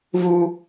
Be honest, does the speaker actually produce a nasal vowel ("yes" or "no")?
no